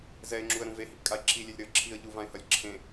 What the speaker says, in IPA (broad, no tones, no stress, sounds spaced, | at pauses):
z ɛ ɪ̯ ŋ͡ǁ u ə̯ ɾ ũ v e h i p kʼ a ɪ̯ ǁʰ i lʲ e lʲ ɾ ɯ ə̯ ǁʰ i ə̯ ʎ u v ã ɪ̯ h ʌ lʲ ǁʰ ẽ